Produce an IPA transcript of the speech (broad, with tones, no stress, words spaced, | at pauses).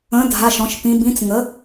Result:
ə̃˩˥dʱa˩˧˩ʃ ɔ̃˩˧ʃpĩ˩˧bĩ˩˥t͡s ŋə˩˥